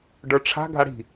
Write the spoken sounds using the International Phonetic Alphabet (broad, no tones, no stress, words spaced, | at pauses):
ɖə˞ʈ͡ʂʰa̤ ɡʱaɽi̤